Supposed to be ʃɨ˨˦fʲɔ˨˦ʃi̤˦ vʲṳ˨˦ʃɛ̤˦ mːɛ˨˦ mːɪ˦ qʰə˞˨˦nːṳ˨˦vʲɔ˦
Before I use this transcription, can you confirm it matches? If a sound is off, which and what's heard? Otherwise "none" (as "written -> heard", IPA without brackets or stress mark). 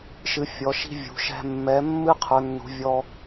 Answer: ɪ˦ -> ɨ˦